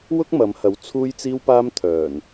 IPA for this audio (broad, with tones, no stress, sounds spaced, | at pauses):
w ʊ˥ k̚ m ɐ˨˧ m h ɐ˨˥ w t͡sʰ uː˧ j t͡s iː˧ w p aː˧ m t̪ʰ œː˨˩ n